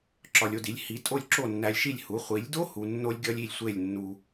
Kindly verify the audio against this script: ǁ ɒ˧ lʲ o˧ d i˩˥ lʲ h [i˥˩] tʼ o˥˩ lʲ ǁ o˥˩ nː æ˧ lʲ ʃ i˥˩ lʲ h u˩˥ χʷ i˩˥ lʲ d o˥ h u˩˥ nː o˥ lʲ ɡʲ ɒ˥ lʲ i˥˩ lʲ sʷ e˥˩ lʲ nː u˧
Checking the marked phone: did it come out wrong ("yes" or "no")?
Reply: yes